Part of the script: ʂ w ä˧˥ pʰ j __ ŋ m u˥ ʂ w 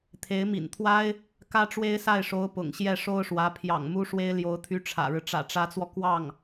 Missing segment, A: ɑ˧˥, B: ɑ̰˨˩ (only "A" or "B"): B